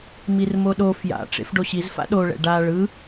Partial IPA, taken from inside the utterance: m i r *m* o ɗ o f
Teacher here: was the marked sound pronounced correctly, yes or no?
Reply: yes